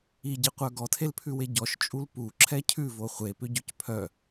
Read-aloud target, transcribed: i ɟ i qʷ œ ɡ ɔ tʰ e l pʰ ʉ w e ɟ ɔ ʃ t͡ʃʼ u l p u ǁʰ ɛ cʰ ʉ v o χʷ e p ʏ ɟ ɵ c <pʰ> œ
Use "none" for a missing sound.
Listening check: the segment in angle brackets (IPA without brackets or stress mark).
pʰ